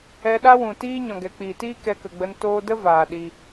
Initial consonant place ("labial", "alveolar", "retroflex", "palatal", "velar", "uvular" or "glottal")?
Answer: alveolar